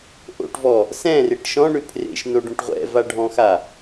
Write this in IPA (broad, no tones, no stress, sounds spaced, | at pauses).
ʔ o̰ ʈ v ɔ | s ɛ̃ r e ʈ ʃ ɔ̃ ɳ ʏ pʰ r ḛ ʃ n o ɖ õ ʈ ʁʷ ɛ̰ v a ɖʱ ɔ̃ x a